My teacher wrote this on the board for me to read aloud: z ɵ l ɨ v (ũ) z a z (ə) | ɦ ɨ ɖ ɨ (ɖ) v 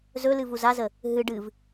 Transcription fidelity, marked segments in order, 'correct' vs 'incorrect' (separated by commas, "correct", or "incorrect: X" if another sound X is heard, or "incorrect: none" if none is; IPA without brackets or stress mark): incorrect: u, correct, incorrect: none